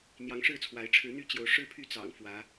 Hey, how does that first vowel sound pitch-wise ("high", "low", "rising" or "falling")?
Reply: rising